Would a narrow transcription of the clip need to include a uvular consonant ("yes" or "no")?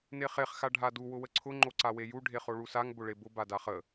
yes